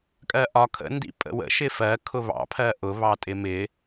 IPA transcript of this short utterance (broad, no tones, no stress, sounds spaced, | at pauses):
kʼ ɜ ʔ ɒ kʰ ə̰ n d ḭ pʼ ə̰ w ə̰ ʃ ɪ f ɜ kʰ ʊ β ɑ̰ pʰ ɜ ʔ ʊ β ɑ tʼ ɪ m ɪ